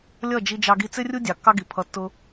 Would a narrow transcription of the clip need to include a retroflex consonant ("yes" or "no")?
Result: no